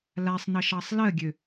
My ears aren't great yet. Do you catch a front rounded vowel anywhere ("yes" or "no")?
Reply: yes